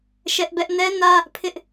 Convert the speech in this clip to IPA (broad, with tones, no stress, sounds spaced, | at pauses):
ʃ ɛ˦ ʔ b ɛ˦ ʔ n ɛ˦ n ä˦ | pʰ ɪ˦ ʔ